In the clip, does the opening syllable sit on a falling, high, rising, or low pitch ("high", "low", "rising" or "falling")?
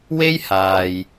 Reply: high